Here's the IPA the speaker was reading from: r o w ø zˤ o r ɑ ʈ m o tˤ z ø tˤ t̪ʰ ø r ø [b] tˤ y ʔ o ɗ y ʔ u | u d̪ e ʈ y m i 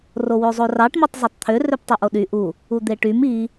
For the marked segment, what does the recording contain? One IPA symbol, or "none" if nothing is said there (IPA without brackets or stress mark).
p